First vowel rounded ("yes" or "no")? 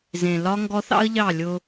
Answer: no